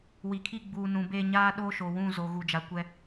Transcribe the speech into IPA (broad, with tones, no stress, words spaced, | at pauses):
wi˨kʰi˦˨ ɡ͡buː˨ nũ˨be˦˨ɲaː˦ ɗoː˦ʃo˨wũ˦˨zo˨ ɣu˨d͡ʒa˨ kʷɛ˦